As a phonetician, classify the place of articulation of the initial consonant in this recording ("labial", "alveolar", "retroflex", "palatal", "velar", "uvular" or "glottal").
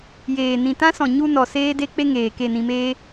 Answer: palatal